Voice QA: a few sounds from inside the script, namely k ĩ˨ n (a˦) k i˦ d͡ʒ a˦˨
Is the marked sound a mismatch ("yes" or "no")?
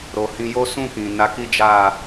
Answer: yes